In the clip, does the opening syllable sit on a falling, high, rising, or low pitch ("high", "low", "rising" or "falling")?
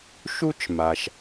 high